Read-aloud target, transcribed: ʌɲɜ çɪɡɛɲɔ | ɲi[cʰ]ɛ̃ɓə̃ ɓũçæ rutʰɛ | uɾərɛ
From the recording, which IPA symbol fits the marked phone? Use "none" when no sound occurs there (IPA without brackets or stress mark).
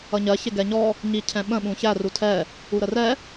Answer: cʰ